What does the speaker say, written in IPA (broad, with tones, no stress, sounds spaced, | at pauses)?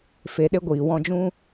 f e˨ ɗ e˧ ɡʷ iː˨ w ɔ̃˧ d͡ʒ ũ˦